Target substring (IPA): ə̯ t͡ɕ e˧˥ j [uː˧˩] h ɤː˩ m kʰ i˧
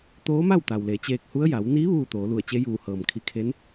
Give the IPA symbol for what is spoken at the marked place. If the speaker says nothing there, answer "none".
uː˧˩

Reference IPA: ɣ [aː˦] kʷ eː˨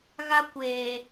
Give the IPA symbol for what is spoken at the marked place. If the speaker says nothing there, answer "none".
a˦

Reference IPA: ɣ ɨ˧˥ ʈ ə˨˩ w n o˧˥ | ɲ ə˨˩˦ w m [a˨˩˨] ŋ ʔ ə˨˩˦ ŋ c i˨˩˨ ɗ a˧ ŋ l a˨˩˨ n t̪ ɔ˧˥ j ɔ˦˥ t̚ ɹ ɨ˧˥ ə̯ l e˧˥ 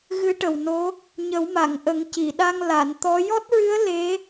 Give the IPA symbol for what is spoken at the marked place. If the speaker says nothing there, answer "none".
a˨˩˨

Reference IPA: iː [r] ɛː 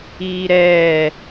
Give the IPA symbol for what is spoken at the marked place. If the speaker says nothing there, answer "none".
ɾ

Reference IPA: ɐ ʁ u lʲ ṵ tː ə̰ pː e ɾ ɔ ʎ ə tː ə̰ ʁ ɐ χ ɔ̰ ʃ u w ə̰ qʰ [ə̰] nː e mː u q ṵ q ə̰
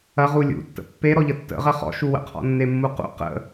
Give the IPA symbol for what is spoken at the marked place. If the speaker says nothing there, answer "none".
ɔ̰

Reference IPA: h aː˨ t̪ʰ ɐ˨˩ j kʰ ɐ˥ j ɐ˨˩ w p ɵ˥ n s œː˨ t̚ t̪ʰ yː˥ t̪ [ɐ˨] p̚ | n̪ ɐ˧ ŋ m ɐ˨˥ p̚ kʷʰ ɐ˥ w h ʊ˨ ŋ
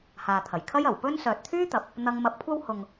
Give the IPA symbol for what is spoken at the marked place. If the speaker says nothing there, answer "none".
ɐ˨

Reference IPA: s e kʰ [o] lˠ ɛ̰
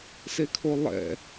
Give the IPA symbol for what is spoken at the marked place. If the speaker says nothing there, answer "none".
o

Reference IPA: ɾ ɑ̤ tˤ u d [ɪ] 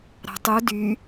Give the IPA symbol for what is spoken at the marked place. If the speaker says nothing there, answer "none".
y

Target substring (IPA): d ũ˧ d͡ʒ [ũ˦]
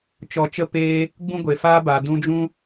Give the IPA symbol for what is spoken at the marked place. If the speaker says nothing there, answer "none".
ũ˦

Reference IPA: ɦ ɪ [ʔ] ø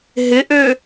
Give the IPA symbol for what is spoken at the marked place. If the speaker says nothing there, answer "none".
ʔ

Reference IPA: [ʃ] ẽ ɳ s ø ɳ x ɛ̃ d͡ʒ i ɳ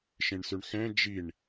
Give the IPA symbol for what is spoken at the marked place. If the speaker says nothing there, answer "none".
ʃ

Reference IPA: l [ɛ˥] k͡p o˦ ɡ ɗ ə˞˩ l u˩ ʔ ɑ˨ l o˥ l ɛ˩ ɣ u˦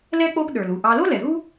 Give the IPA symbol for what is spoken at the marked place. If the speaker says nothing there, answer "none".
ɛ˥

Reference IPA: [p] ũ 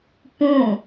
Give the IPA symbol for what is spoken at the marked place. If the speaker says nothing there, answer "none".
p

